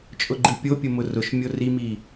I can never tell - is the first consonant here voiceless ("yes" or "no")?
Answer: yes